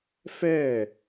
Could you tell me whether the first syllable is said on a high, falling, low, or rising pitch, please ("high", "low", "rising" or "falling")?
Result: falling